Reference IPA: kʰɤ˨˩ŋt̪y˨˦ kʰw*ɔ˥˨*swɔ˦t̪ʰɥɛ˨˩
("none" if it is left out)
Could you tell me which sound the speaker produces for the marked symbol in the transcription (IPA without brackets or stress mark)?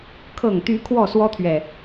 ɔ˥˨